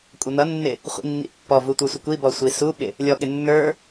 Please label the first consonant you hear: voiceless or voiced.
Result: voiceless